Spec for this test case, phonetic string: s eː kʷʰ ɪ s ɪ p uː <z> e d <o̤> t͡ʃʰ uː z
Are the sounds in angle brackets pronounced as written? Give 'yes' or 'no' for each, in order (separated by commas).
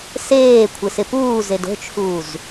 yes, yes